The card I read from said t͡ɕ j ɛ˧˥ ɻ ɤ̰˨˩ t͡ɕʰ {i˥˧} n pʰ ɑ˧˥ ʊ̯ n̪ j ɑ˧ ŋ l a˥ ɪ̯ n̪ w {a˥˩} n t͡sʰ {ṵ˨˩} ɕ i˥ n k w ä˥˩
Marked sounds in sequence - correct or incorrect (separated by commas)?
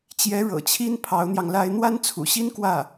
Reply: incorrect, incorrect, correct